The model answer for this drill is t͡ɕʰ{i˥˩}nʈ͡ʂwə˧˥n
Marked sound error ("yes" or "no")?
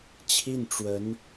no